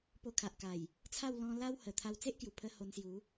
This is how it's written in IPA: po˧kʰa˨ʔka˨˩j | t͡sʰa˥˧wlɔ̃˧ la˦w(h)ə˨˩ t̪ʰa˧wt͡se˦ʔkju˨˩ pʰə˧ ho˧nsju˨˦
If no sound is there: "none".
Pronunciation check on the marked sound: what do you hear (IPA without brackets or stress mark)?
h